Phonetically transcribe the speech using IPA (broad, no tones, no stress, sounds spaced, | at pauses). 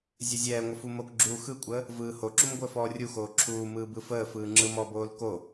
zʲ ə zʲ ɛː ŋʷ ə f u m o k ɡ͡ǁ uː x ɯ kʷʼ əː | v ɯː h o ǁ u m ɡʷ əː f ɔː rʲ u x oː ǁʰ uː m ɯː b ɯ f əː f ɯː ŋ͡ǁ ɯ m ɔ b oː l k o